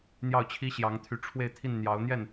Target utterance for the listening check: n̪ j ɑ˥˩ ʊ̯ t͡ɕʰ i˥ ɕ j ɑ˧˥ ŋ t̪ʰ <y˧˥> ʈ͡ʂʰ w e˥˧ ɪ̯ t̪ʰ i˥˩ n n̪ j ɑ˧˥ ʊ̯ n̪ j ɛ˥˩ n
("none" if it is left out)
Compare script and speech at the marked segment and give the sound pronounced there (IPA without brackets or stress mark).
y˧˥